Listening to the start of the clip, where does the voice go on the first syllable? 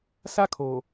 high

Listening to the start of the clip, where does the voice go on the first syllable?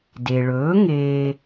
low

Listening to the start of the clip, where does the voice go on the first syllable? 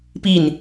falling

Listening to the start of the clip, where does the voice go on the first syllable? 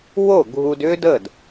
falling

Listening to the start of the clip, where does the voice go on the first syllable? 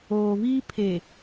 low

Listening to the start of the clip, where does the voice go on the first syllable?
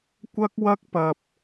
high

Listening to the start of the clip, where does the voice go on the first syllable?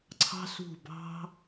high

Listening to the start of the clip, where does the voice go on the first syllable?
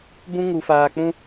high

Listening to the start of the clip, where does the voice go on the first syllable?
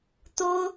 high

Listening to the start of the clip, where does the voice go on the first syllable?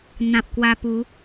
low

